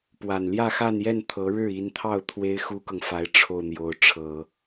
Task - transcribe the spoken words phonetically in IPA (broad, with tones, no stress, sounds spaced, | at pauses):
p w a˨˩ n l j ä˥˧ x a˥˧ n j ɛ˥˩ n t̪ʰ ɤ˧˥ ɻ ɻ̩˥˩ i˧˥ n t̪ʰ ɑ˥˩ ʊ̯ t̪ʰ w e˥ ɪ̯ x u˥ k ɤ˨ ŋ f a˧˥ ɪ̯ ʈ͡ʂʰ o˥˩ ʊ̯ n̪ j o˧˥ ʊ̯ ʈ͡ʂʰ ɤ˨˩˦